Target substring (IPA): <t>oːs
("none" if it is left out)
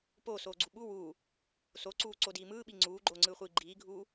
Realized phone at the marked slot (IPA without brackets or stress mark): p